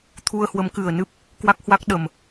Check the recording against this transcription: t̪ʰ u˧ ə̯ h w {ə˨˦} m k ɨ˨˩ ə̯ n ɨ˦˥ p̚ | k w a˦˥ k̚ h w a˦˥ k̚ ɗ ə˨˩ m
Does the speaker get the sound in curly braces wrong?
no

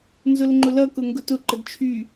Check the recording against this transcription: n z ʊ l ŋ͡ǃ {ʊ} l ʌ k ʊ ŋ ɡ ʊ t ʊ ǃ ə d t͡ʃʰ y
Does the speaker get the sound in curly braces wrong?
no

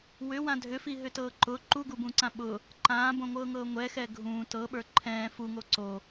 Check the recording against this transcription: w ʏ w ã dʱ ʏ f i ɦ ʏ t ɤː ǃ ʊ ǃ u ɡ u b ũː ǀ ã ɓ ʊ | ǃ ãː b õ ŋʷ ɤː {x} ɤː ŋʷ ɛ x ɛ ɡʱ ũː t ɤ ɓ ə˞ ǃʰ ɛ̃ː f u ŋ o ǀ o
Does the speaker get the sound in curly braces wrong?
yes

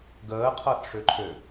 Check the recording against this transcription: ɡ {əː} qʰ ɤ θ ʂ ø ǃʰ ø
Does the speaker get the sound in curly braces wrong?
no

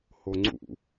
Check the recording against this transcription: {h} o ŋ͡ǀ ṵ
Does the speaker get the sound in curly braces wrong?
no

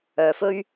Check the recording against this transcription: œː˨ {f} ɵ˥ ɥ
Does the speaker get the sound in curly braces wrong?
no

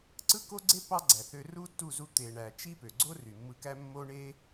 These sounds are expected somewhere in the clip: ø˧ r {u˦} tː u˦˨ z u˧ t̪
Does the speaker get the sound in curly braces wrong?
no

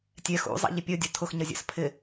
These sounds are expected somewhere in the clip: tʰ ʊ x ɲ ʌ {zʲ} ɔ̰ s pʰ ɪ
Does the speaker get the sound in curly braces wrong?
no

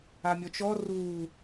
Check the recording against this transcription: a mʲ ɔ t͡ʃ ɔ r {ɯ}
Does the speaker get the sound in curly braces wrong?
yes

